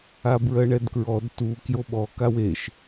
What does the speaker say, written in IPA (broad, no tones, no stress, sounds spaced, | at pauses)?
a b ɹ ɜ ɳ ɛ d k ɹ ɔ d t u k j o ɓ ɔ k a w e ʃ